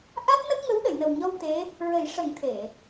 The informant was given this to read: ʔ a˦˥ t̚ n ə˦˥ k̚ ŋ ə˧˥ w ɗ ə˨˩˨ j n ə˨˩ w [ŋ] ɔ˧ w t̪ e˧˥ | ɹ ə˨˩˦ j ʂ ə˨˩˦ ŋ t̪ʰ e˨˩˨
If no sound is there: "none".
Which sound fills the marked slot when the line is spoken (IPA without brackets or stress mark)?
ɲ